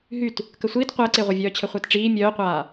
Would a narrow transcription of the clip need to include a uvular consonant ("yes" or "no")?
yes